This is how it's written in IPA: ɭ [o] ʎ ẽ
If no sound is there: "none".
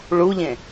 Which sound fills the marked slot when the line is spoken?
u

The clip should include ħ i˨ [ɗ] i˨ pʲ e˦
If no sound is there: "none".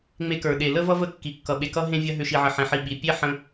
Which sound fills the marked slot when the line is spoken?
ɓ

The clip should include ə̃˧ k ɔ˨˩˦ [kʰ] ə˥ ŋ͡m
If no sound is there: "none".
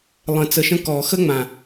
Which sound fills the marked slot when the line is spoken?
x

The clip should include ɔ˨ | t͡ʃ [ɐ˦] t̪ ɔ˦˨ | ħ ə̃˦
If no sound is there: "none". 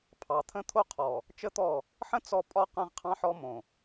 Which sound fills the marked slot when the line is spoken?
ə˦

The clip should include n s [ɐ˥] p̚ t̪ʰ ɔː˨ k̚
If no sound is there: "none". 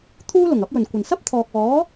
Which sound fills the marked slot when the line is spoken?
ɐ˥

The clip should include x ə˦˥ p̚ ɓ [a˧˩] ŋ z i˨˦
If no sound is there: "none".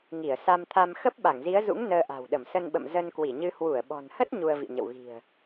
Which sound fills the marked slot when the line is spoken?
a˧˩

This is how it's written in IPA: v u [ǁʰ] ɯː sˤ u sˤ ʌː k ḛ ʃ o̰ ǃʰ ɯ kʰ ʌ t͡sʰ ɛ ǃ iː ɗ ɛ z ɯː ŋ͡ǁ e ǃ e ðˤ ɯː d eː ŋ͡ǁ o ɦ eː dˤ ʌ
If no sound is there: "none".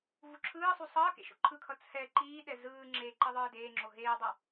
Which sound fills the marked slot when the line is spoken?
ǁʰ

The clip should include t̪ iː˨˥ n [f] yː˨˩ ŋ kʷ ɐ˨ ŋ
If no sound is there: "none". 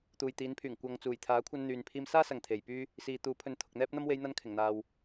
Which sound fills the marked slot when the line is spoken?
pʰ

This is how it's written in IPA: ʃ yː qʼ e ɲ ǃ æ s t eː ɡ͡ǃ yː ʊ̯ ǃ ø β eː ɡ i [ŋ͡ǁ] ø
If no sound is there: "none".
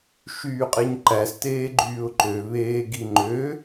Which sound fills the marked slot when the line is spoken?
ŋ͡ǃ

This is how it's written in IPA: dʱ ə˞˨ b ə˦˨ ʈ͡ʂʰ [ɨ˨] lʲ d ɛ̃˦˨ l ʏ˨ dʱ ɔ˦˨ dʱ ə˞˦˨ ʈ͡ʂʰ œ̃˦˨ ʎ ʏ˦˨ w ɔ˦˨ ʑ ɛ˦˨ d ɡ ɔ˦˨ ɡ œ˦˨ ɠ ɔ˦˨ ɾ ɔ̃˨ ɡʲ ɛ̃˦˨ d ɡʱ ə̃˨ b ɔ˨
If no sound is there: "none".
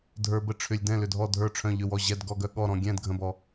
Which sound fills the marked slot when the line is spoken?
ʏ˨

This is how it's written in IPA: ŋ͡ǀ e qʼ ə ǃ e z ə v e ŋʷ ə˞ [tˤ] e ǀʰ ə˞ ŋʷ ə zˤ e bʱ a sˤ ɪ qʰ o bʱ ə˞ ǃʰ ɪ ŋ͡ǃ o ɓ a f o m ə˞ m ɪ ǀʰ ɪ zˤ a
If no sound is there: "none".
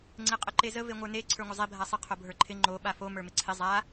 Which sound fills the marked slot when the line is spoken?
n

